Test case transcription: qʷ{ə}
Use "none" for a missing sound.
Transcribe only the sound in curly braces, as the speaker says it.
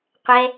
ɛ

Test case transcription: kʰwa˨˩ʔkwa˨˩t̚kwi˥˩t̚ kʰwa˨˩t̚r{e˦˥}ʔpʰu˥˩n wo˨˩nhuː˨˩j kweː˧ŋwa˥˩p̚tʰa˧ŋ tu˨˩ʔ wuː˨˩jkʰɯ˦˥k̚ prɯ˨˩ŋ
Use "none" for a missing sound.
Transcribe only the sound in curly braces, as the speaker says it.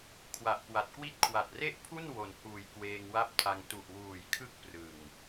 e˥˩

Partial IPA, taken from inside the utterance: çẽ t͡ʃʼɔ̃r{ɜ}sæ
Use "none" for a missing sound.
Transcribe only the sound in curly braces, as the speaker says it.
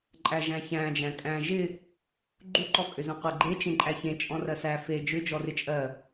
ɜ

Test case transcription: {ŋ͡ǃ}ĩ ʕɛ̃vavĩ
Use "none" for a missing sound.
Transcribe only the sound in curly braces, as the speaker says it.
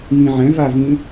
ŋ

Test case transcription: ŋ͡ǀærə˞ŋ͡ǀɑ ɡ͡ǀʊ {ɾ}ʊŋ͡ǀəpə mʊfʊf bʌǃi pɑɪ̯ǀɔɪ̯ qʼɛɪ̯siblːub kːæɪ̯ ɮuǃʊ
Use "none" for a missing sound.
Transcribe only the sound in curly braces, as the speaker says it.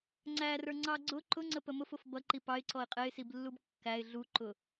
ǃ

